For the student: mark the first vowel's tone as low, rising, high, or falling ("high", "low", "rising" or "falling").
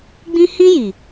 high